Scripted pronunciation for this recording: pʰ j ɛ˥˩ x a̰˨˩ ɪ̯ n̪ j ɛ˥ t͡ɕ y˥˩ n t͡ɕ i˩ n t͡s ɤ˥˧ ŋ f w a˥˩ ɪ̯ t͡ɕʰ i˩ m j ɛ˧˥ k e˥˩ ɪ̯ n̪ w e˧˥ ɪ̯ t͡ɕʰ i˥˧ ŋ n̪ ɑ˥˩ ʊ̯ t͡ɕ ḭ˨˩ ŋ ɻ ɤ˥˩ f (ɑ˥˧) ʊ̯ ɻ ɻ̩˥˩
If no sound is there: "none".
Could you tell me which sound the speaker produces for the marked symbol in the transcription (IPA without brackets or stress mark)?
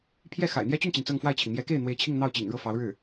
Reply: ɑ˧˥